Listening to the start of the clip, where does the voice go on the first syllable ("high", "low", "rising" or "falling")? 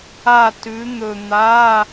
falling